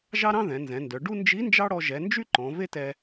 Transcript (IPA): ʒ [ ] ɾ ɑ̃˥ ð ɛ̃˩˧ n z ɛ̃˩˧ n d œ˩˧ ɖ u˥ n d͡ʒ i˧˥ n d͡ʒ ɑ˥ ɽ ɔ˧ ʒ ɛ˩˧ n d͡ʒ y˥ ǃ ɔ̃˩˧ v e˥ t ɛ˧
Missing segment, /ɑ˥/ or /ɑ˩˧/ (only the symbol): ɑ˥